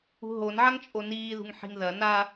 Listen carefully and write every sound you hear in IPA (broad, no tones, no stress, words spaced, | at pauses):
ṳɦon ʕaŋt͡ʃʼoniːðṳŋ ħi̤ŋðɐ na